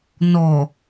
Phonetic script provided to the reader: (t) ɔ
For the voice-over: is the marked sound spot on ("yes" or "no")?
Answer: no